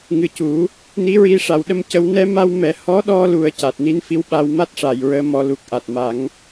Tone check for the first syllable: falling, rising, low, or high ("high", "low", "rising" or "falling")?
low